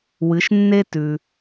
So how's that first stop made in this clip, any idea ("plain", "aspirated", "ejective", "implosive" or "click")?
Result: plain